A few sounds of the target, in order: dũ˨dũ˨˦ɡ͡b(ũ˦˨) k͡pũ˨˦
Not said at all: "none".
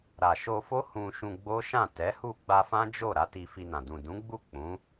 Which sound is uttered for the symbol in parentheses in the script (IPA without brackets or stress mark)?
u˦˨